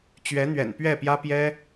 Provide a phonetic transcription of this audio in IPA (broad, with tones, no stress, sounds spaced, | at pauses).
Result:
t͡ɕ ɥ ɛ˧˥ n̪ ɥ ɛ̰˨˩ n p ɥ ɛ˥˩ p j ä˥ p j ɛ˥